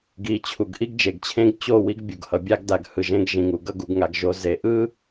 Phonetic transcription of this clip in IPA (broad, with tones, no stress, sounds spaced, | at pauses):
ɡ i˨ t͡ɕʰ u˨ ɡ ʔ i˦ ɡ d͡ʒ e˨ ɡ t͡ɕʰ ẽ˦ ɡ t͡ɕ o˦˨ w i˦ ɡ bʲ u˨ ɡ h ʌ˨ bʲ a˦ ɡ d a˨ ɡ h ɯ˨ ʒ ẽ˦ ɡ ʒ ĩ˨ ŋ u˨ ɡ ʌ˦ ɡ u˨ ɡ ŋ a˨ ɡ ʒ o˨ z e˨ ʔ ɯ˦